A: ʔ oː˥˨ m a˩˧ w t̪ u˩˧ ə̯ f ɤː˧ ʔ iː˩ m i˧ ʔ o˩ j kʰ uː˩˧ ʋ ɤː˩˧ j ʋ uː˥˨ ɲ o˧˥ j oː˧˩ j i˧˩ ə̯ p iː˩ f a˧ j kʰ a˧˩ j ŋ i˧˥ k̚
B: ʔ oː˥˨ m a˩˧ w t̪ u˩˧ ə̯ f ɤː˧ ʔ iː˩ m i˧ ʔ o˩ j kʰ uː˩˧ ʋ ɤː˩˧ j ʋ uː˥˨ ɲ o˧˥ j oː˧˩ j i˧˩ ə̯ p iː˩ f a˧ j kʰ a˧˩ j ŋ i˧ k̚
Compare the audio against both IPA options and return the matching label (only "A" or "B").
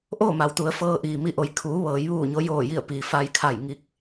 B